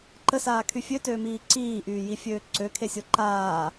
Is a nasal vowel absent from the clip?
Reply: yes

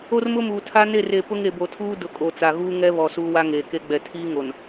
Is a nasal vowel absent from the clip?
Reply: yes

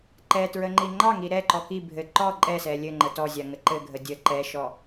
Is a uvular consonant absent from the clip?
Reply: yes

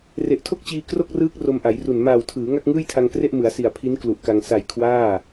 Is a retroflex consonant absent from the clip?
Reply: yes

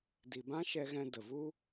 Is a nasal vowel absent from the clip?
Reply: no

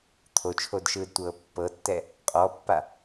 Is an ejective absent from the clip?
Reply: no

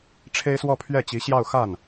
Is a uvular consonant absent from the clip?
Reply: yes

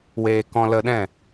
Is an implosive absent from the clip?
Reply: no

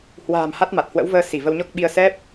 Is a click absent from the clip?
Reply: yes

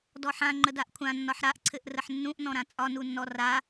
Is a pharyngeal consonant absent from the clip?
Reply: no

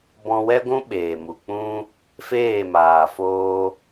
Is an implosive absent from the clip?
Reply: no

